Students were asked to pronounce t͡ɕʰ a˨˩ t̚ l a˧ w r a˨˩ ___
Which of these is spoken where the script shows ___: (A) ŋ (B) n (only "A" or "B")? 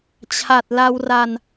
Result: B